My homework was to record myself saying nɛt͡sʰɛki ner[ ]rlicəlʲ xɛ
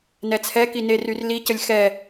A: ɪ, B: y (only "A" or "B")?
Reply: B